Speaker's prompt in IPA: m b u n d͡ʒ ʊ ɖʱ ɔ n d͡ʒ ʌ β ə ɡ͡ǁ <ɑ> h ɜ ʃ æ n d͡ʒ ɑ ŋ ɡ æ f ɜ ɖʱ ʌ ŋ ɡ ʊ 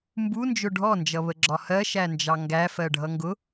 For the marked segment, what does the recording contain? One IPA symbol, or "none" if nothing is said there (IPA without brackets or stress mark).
ɒ